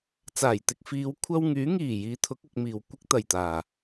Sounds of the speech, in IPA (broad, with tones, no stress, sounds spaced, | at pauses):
t͡s aː˨˩ j t̪ ɪ˧ k̚ f iː˨˧ w kʷʰ ɐ˧ w ŋ yː˨˥ ŋ iː˨˩ j iː˨˧ t̪ʰ ʊ˨˥ k̚ ʊ˨ k̚ m iː˨˩ w kʷ ɪ˥ k̚ t̪ ɐ˨˩ j t̪ aː˨˩